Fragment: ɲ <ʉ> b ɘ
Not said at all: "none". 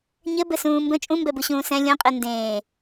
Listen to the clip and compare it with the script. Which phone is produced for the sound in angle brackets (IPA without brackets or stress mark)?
ɘ